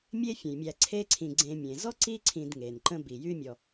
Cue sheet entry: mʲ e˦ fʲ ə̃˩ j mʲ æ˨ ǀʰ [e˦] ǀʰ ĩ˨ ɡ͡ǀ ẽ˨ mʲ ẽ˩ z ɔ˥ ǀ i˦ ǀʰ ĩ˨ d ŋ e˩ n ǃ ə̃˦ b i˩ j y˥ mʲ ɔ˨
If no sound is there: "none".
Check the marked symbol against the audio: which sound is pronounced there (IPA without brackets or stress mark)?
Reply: e˦